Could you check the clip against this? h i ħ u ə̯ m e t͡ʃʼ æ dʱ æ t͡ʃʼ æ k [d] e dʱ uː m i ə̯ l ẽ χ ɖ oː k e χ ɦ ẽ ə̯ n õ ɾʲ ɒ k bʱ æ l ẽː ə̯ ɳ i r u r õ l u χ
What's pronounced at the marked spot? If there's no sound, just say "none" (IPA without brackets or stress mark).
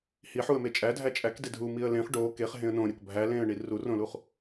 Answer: d